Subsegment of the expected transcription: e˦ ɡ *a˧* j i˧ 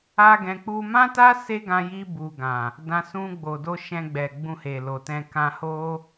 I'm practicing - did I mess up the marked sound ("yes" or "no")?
yes